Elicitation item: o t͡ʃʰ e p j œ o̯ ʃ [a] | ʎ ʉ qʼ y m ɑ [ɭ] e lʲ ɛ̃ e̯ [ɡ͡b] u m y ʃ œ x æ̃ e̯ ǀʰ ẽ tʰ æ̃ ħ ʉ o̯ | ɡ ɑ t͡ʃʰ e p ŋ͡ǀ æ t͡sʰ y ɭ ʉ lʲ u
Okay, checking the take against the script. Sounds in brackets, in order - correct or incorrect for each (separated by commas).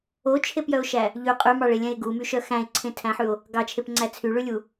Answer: incorrect, correct, incorrect